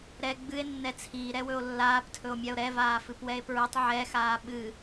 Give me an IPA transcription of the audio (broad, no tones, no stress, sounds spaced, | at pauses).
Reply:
ɾ ɛ ɡ͡b ɨ e̯ nː ɛ t͡sʰ iː ɾ ɛ w ɵ o̯ lː aː p tʰ ɵ o̯ mʲ a o̯ ɾ ɛ v aː f ɨ p w ɛ e̯ p ɹ ɨ tˤ ʕ ɛ x aː ɓ ɨ